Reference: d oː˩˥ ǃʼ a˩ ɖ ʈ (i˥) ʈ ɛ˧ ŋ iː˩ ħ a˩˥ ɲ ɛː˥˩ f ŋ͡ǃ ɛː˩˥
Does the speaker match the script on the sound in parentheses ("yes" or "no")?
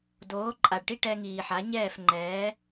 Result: yes